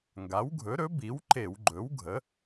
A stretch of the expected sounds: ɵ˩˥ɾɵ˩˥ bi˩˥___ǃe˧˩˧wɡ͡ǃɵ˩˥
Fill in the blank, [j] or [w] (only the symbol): w